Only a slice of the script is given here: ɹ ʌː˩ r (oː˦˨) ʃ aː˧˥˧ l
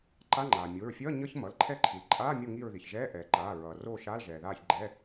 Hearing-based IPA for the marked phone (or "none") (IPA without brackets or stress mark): oː˦˨